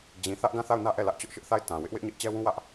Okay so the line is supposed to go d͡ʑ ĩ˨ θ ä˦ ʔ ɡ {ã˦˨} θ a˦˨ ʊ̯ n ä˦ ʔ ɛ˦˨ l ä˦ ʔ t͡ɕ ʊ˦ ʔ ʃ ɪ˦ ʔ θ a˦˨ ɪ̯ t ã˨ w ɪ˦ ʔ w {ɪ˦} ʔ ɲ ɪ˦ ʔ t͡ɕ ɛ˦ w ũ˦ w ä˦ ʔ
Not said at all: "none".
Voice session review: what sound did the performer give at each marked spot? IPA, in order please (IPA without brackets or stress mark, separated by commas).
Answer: ã˦˨, ɪ˦